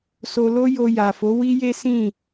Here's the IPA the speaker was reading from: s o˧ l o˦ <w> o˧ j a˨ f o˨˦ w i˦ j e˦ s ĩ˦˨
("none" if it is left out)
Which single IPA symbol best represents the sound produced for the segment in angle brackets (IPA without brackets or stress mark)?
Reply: j